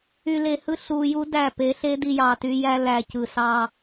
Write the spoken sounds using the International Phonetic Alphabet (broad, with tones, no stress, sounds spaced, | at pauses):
y˨ l e˨ h ɯ˦ ɬ uː˨ j u˦ d æ˦˨ p e˨˦ ɬ e˦ d i˦ j ɑ˨ t y˦ j æ˦ l æ˨ c ɯ˨ s ɑː˦